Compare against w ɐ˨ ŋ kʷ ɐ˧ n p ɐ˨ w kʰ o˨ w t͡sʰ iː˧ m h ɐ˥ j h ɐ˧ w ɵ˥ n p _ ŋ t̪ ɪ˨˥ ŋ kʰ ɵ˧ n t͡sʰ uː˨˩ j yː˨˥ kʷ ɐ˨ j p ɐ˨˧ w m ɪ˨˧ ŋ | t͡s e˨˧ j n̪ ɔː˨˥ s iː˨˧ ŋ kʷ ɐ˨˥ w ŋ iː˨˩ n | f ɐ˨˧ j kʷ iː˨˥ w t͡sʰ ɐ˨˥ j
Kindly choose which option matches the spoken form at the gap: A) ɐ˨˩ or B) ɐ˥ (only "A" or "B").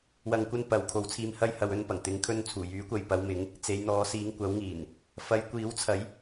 A